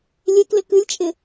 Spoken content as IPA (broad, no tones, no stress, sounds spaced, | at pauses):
lʲ e k l ɪ k ɨ lʲ t͡ʃʼ ɪ